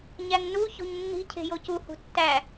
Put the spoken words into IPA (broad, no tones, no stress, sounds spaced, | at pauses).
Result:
ɲ æ ŋ n u ç o̤ ɲ nː i̤ cʰ e̤ j o c u h ṳ tː æ